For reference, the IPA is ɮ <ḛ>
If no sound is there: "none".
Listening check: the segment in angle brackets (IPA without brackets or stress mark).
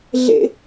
ḛ